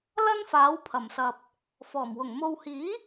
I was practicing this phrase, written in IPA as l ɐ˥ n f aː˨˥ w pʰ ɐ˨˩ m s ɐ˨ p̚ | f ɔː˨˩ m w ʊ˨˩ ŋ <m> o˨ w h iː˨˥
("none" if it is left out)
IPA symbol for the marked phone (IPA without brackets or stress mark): m